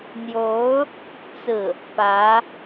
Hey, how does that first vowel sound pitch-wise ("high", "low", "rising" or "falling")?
rising